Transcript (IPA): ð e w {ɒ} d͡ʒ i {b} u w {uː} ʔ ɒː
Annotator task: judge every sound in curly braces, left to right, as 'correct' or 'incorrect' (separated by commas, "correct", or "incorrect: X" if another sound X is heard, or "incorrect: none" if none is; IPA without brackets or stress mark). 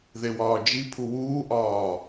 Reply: incorrect: ɒː, incorrect: pʰ, correct